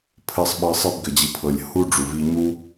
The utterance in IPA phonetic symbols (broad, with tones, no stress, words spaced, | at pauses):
pʰɘ˧sˤ ɓɤ˧sˤɘ˦b ɡɘ˨d͡ʑi˨pʰɤ˨lʲ hu˦ ɖ͡ʐu˨vi˧ɲu˦